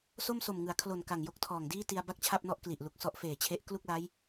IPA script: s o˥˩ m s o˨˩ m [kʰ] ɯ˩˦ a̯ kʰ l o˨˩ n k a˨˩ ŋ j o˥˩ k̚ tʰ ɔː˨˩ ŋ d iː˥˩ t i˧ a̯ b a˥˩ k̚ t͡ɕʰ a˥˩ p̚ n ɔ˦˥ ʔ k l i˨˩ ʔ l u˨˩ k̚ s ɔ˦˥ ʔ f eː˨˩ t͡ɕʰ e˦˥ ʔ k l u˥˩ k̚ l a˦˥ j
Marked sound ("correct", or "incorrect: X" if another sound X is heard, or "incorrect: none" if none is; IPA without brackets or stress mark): incorrect: ŋ